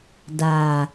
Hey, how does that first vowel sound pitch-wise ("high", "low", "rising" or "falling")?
low